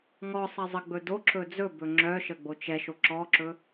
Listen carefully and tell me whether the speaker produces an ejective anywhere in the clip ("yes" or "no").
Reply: no